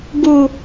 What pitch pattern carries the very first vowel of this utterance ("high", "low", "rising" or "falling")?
low